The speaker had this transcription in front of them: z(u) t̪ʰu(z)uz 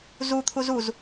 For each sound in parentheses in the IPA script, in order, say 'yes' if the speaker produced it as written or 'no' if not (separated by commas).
yes, yes